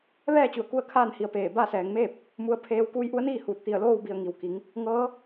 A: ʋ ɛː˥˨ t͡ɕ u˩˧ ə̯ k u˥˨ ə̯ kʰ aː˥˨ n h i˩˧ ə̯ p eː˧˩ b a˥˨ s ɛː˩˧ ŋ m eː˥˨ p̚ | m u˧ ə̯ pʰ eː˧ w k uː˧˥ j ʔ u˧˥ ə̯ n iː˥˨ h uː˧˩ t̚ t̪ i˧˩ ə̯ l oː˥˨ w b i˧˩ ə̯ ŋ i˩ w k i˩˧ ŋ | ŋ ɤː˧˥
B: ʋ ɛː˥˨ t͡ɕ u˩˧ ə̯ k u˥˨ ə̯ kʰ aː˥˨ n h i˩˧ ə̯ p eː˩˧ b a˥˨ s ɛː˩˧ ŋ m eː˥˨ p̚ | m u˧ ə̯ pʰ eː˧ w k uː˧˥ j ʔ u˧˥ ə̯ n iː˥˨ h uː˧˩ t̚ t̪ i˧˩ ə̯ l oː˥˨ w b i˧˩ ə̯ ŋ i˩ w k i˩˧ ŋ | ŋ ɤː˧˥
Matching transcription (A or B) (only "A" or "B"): A